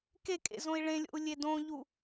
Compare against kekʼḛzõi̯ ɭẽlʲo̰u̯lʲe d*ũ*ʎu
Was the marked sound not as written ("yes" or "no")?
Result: yes